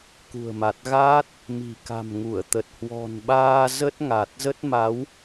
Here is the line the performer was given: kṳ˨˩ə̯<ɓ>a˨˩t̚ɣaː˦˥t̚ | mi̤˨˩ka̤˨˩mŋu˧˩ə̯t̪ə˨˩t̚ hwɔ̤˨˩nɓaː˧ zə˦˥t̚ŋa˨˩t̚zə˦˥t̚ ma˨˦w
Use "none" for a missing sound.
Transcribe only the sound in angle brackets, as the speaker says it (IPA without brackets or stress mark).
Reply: m